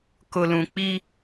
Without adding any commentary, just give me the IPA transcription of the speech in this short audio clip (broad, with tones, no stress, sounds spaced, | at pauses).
k ʊ˨ l ũ˨ k͡p i˦